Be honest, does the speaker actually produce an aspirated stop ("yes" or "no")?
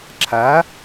yes